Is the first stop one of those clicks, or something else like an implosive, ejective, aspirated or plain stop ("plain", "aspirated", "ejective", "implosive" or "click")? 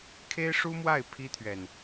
aspirated